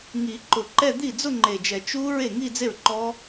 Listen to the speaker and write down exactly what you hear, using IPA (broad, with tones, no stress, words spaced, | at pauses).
ŋi˨˩˦ǃʊ˨˩˦ǃɛ˥˧ d̪i˥˩d͡zʊ˥˧ŋ͡ǃe˨˩d͡ʒɛ˨˩˦ t͡ʃu˦˥ ɹe˥˩ŋi˥˧d͡ze˥˩ɹǃɔ˦˥